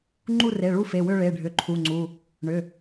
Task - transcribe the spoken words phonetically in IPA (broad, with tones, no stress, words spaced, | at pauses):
ŋ͡ǃu˦˨re˩˧˩ɭu˦˨fe˩˧˩ wʏ˦˨ɭe˩˧˩ɖʱʏ˩˧˩ ǃʰu˩˧˩ŋ͡ǀu˩˧˩ | ɳʏ˩˧˩